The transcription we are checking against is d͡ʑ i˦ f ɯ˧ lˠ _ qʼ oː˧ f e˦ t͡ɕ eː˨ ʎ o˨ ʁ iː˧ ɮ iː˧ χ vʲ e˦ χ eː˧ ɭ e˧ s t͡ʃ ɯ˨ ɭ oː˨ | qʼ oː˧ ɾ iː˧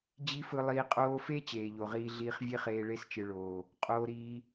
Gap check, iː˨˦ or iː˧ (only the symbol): iː˧